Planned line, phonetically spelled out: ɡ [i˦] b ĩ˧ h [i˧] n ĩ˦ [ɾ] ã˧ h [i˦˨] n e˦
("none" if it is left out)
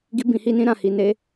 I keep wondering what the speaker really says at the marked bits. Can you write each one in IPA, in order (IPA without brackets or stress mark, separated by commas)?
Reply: i˦, i˦, ɾ, i˧